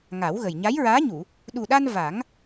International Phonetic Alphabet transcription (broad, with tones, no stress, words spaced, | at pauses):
ŋa˨˩˦wɣə˨˩j ɲa˧˥jɹaː˧˥ɲu˨˩˨ | ɗu˨˩ɗa˧n va˨˩˦ŋ